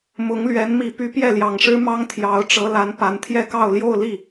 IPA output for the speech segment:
m ʊ˧˥ ŋ l ɥ ɛ˧˥ n m i˨˩ p y˧˥ p j ɛ˥˩ l j ɑ˨˩ ŋ ʂ ɻ̩˥ m ɑ˥ ŋ t̪ʰ j ɑ˧˥ ʊ̯ ʈ͡ʂ ɤ˧˥ l a˧˥ n p a˧˥ n t̪ʰ j ɛ˥˧ k ɑ˥˧ ʊ̯ l j o˥˧ ʊ̯ l i˥˩

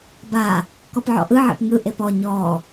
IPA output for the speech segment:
b a | k ɔ p ʕ ɔ̰ ʔ ɯ ʕ ḛ p ŋ ɯ ʔ e p ɔ ɲ ɔ

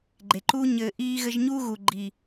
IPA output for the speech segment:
ɡ͡ǃ e˨ ǃ uː˦ ɲ ɘː˧ ʔ iː˧ ɣ ɘ˧ ʒ ɲ uː˦ ɣ u˨ ɡ͡ǃ i˨

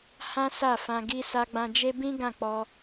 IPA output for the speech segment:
h ã˦ s a˦˨ f ã˧ ɡ i˧ s a˧ ɡ͡b ã˧ d͡ʒ e˦ b ĩ˦ ɡ ã˦˨ k͡p ɔ˧

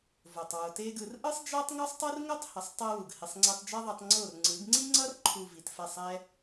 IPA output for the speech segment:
v o˨ tˤ w o˨ t e˦ ɡ ɯ˧ r ʔ ɯ˦ sˤ d͡ʒ a˦ tˤ ŋ u˦ sˤ tˤ ɯ˦ r ŋ o˦ tˤ h ʌ˨ sˤ tˤ ɛ˦ w u˨ ɡ h i˨ sˤ ŋ͡ǀ e˧ tˤ d͡ʒ a˦ ðˤ a˧ tˤ ŋ͡ǀ o˦˨ r ŋ͡ǀ ɯ˨˦ ɡ ŋ͡ǀ i˦ ŋ͡ǀ ʌ˦ r ǃʰ u˨ v i˨ t f ɛ˦˨ sˤ ɛ˦

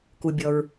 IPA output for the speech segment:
k u˩ bʲ ɔ˩ ɹ

